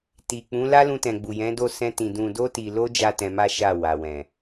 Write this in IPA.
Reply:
ti˨ k͡pũ˨˦ la˦lũ˧tɛ̃˨ ɡ͡bu˨jɛ̃˨˦do˦˨ sɛ̃˧tĩ˨ dũ˨do˧ti˨lo˧ d͡ʒa˦tɛ̃˧ma˦ ʃa˦˨ wa˨wɛ̃˨

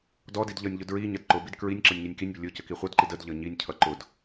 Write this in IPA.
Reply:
dɔdid ʎʌnʲʎʊ dɹi ɲʌdǃʊbid kɹinʲǁʌnʲ ɲʌnʲkinʲbʊ lʲʊ cəkiχʷʌdǃid ədʎʌ ɲinʲcʰʌ ǃʊd

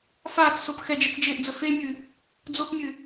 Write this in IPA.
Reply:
faːt͡ssop xɛd͡ʒɛt͡sd͡ʒeːʔd͡zə femʲɨ | d͡zopmʲɨ

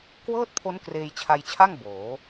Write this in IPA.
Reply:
kwɤː˥˩t̚pʰo˦˥n kreː˧jt͡ɕʰa˧jt͡ɕʰa˥˩ŋ boː˩˦

